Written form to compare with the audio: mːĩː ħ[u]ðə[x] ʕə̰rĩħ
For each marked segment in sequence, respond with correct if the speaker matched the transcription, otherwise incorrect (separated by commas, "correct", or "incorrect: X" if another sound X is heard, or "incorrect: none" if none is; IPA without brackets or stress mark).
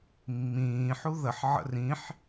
correct, incorrect: ħ